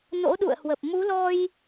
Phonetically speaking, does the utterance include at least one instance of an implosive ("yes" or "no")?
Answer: yes